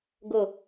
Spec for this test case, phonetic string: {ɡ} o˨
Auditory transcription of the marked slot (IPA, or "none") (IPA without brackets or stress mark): ɡ